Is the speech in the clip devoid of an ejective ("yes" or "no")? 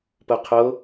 yes